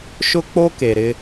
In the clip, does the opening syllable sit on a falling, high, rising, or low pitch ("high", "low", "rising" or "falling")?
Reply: high